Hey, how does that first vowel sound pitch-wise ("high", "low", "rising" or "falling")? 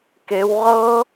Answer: rising